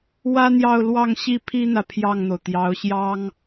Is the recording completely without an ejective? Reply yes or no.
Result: yes